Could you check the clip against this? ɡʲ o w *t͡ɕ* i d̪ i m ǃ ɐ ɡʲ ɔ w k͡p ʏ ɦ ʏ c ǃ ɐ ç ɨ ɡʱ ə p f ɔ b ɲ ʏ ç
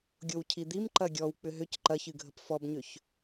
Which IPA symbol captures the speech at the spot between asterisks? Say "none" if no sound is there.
cʰ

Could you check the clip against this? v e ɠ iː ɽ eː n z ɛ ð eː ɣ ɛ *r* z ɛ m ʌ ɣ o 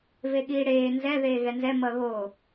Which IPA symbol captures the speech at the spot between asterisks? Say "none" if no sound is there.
n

